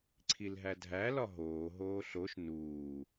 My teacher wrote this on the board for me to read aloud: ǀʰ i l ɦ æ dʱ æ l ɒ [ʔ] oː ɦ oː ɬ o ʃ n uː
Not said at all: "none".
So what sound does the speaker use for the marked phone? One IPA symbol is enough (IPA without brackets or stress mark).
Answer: ɦ